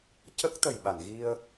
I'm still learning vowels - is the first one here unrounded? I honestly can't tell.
yes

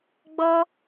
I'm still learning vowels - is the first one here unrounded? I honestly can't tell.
no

